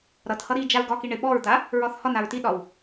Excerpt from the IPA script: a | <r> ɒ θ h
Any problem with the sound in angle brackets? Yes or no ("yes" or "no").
yes